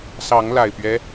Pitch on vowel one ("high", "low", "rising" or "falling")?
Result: rising